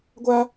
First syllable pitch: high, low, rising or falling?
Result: high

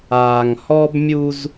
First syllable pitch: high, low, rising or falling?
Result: low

